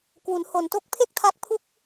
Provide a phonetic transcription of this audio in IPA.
kwu˩˦nho˨˩nto˦˥k̚ pʰe˥˩k̚tʰa˦˥k̚ pʰu˥˩k̚

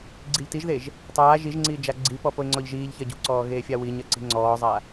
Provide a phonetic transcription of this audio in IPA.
ɡ͡ǀiʎtiʒðeʒ | tˤaː ʒiʒŋ͡ǀiː d͡ʒaɡ͡ǀipɔ poɪ̯ŋ͡ǀɔʎʒiːʎçɜ ɟṳǀɔː ɣeːfʲawiɲɜ ǀi̤ŋ͡ǀɔːzˤa

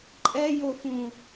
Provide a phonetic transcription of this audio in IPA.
ǃʼɛjofũ

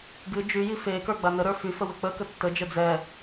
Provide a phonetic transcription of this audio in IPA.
ɡɨ d͡ʒyji fekə˞ ɡ͡banəɾə˞ fyfə wɘk͡pəkə tːəd͡ʒə d͡zɛ

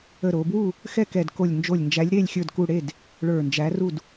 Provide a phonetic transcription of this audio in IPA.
ə˧˩ɾo˩˧bwu˥˨ | xɛ˥˨kɛ˧˩dko˧˩lʲ nd͡ʒo˧˩lʲnd͡ʒæ˨˥lʲɾe˥˨lʲ xʲə˞˥˨dku˥˨ ɽe˥˨d | ɭə˞˧˩nd͡ʒæ˨˥ru˥˨d

